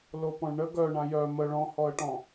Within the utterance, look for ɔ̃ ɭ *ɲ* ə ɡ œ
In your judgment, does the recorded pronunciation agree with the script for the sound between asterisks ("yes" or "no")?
no